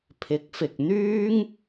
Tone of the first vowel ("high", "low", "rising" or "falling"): rising